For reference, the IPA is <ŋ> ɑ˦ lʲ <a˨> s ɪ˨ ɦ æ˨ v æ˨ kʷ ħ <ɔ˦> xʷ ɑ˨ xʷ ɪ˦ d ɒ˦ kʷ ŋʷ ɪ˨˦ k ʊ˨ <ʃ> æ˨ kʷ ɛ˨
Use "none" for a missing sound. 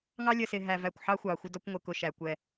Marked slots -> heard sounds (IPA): ŋ, ə˨, ɑ˦, ʃ

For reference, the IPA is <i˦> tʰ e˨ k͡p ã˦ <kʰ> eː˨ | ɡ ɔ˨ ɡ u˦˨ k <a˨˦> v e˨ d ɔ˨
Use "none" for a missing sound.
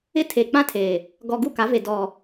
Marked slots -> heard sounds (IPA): ɪ˦, tʰ, a˨˦

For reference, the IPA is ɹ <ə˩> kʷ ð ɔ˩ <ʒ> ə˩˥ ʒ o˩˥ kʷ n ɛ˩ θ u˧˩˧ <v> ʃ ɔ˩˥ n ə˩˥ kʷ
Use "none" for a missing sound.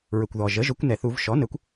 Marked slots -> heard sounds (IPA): ə˩, ʒ, v

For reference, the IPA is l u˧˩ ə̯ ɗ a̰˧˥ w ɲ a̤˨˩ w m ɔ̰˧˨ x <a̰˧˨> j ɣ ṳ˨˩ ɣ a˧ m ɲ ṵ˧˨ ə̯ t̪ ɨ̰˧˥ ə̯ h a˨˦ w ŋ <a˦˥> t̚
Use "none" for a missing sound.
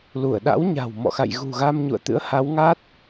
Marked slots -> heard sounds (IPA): a̰˧˨, a˦˥

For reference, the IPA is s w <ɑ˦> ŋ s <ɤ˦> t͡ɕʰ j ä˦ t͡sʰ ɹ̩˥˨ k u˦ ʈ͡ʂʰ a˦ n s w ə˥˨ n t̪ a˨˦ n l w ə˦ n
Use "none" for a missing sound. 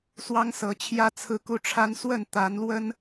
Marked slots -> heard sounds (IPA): ɑ˦, ɤ˨˦

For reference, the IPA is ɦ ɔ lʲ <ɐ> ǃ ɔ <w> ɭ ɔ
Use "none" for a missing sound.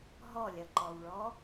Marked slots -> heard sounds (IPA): ɐ, w

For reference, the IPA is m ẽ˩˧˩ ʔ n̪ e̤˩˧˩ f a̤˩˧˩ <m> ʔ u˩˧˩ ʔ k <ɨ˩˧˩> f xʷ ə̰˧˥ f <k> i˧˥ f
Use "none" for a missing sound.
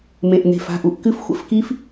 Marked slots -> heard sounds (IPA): none, ɨ˧˥, k

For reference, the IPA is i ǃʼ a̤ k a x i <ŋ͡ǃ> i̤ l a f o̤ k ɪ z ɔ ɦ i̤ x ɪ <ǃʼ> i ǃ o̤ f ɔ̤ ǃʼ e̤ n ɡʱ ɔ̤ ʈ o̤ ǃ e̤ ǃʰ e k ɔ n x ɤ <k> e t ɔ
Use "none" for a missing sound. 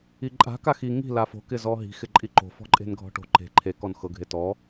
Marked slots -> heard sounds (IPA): ŋ, ǃʼ, ɡʱ

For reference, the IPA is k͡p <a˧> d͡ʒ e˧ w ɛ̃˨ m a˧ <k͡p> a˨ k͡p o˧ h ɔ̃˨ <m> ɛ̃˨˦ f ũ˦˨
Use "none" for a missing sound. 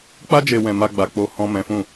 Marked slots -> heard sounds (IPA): a˦, ɡ͡b, m

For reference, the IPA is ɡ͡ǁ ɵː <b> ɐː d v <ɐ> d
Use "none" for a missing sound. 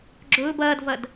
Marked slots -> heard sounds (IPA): b, ɐ

